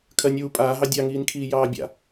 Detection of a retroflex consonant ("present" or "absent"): absent